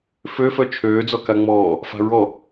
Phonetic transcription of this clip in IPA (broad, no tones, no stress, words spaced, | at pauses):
føfœ t͡ʃʰøːd͡zɔ kaŋ͡mɔː | fa̤ɹɔ